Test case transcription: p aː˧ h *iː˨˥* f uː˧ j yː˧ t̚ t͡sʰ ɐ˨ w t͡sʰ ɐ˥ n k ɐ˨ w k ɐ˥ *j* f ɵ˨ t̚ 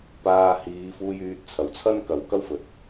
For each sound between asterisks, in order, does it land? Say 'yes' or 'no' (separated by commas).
no, no